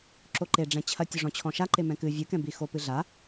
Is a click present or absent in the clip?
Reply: present